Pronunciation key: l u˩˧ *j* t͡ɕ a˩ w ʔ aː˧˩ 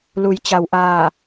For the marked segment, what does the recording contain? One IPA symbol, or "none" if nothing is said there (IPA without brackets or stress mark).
j